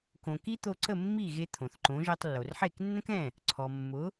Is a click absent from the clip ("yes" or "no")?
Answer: no